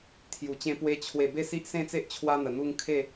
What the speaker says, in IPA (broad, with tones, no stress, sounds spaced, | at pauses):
t̪ʰ j u˨˩ t͡ɕ ẽ˧ p w e˧ t͡ɕʰ w e˨˩ b e˥˧ s i˦ ʔ s ẽ˥˧ t͡s e˦ ʔ t͡ɕʰ w a˧ n̪ ə˨˩ n̪ u˧ ŋ kʰ e˥˧